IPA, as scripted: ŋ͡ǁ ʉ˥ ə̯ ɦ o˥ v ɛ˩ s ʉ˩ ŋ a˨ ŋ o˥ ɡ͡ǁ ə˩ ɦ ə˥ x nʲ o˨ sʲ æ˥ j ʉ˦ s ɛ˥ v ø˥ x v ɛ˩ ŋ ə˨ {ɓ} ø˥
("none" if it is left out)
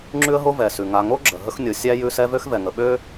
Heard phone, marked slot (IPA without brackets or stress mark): ɓ